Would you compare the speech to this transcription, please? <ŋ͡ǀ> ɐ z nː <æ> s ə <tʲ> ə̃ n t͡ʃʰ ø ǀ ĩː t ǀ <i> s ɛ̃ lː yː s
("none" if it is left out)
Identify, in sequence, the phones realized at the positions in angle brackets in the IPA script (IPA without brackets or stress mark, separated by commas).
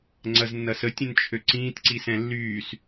ŋ͡ǀ, ɐ, tʲ, i